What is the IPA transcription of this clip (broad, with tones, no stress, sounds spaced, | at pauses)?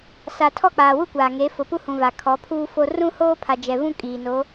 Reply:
s a˨ tʰ ɔ˦˨ k͡p aː˨ w u˦ kʷ aː˨ ŋ e˨˦ f ʊ˨ p u˦ h ũ˨ v a˨ kʰ ɔ˨˦ pʰ uː˦ f o˦ r ũ˦ h oː˦ pʰ a˨ d͡ʒ ɛ˨ v ũ˦ kʼ iː˨ n o˨˦